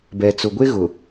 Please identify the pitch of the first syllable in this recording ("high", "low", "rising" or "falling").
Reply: low